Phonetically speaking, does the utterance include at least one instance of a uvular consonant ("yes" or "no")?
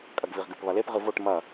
yes